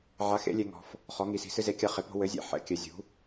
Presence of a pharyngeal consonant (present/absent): present